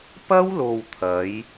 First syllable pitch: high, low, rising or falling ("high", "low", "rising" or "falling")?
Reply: high